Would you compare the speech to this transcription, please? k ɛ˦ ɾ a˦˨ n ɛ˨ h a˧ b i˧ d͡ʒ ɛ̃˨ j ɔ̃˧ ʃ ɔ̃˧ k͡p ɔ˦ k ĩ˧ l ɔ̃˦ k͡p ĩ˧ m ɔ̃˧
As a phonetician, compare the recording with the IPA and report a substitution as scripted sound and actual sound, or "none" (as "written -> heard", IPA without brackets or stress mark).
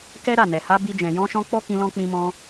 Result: none